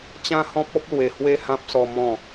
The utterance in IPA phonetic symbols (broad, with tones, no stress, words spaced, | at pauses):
t͡ɕã˦hɔ̃˦p̚ɔ˦p̚ lwe˨˩ hwe˥˧hã˦p̚sɔ˧ mɔ̃˥˧